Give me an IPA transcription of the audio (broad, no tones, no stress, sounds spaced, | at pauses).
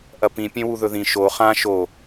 ʔ ɐ p ĩ pʲ ẽ w u ð ɵ ð ĩ ʃ o χ ã ʃ o